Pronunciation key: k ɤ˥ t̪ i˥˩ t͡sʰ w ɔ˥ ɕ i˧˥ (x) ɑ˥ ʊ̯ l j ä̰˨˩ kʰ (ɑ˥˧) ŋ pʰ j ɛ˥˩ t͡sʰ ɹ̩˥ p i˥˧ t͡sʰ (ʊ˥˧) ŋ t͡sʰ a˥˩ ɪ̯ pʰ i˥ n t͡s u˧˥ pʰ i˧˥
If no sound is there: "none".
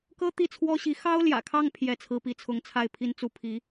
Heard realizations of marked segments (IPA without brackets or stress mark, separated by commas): x, ɑ˥˧, ʊ˥˧